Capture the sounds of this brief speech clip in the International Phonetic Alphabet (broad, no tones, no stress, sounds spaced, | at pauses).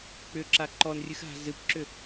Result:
k͡p ʏ ǁ a ǃ ɔ n rʲ ɨ x ɦ a̤ z ɨ p ǁ ʏ